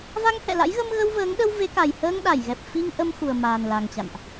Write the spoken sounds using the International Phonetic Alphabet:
v a˧ ŋ h ɛ̰˧˨ l a̰˧˥ j ɣ ə˧ m ɣ ə˧ w v əː˨˦ ŋ ɗ ə˧ w v e˨˦ k a˨˩ j h əː˧ ŋ ɗ a˧˩ j ɣ ɛ˨˩ p̚ f i˧ ŋ ʔ ə˧ m x u˨˩ ə̯ m aː˨˩ n l a˨˩ ŋ t͡ɕ a̰˧˨ n ʔ

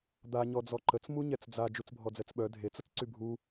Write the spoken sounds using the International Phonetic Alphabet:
d̪ a ɲ ɔ d͡z ɔ ǃ ə t͡s m u ɲ ɛ t͡s d͡z a d͡ʒ u t͡s bʱ ɔ d͡z ɛ t͡s ɓ œ dʱ e t͡s ə t͡s ǀ y bʱ u

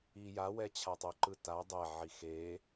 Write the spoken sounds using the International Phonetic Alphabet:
i j a w ɛ t͡ɕʰ a tˤ o ǃ ɯ t a dˤ ɛ ʕ i x e

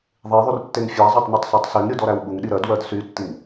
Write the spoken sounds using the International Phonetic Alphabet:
ðˤ e ðˤ y r tː e ŋ fʲ æ zˤ ɛ tˤ n y tˤ s ɜ tˤ s y ŋ ɾʲ u d ɔ ɾ æ w ɓ u ŋ ɗ i ɾ ɜ d w ɜ d s y tː i ŋ

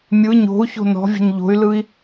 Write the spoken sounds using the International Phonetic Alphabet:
mʲ ɯ ɲ o̤ u̯ ç o̤ n ɔ̤ vʲ ə̤ ɲ ʎ o̤ y̯ l ɯ i̯

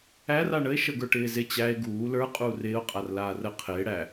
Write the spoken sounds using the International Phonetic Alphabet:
æ r a ɳ ə e̯ ʃ ə ɡ ə˞ ʈ ɪː z ɪ t͡ɕ æ e̯ ɡ uː l ə˞ qʼ uː r ɪː o̯ qʼ a r l aː r ə qʰ ɪː ɽ æ

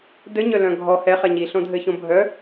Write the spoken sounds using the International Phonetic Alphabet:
d ɘ ɲ œ l œ̃ ɡʱ ɔ h ɛ χ ɛ ɲ i ɬ õ dʱ ɘ ç õ bʱ œ

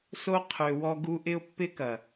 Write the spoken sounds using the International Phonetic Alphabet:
s o˦ qʰ ø˨ w ɔ˧ ɡ u˧ ʔ ɪ˦ ʊ̯ pː ɪ˦ k ɐ˨

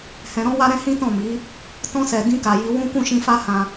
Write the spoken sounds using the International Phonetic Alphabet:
h ɛ̃˨ ɾ ɔ̃˧ w a˧ ɾ ɛ̃˦ h ĩ˦ t ɔ̃˦˨ m i˨˦ | t ɔ̃˧ s ɛ˨ d ĩ˧ k a˨ j i˧ w ũ˦ k ũ˦˨ ʃ ĩ˧ f a˦ h ã˧

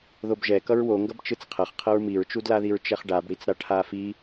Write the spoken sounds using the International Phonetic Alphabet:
ð o b ʒ ɛ k ʌ ɹ w o ŋ ɡ ʌ b t͡ʃ ɯ t͡s qʰ ʌ χ qʰ ʌ ɹ m i ɹ t͡ʃ u d l a ð i ɹ t͡ʃ ɛ χ ɖ a b ɽ i t͡s ɾ a ʈʰ a f i

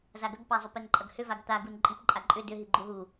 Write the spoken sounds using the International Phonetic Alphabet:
z a ɡ ɐ ɡ p a zˤ ʏ p e n ǃʼ ɐ ɡ h ʏ v a ɡ t̪ a ɡ u n ǃʼ i p ǃʼ a ǃʼ ʏ d ʏ ɦ i ɡ͡ǃ u ɦ u

